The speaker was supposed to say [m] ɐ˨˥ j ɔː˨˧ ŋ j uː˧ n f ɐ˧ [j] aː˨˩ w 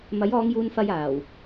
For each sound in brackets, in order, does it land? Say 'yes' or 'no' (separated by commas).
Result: yes, yes